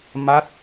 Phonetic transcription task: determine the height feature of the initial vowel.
low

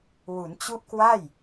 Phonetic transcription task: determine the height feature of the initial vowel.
high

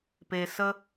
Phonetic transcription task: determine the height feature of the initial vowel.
mid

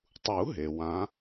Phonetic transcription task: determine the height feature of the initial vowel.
high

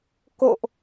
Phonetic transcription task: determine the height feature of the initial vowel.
mid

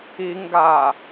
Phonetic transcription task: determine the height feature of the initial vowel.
high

